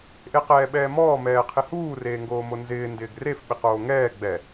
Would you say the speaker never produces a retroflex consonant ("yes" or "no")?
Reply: yes